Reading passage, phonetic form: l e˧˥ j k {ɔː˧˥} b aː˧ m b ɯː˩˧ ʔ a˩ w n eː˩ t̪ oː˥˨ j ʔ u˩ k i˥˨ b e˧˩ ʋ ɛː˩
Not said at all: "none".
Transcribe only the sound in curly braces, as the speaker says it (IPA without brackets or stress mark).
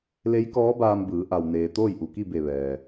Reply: ɔː˧˥